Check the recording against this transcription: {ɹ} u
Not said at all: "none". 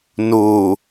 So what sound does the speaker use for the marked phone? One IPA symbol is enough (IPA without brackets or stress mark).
n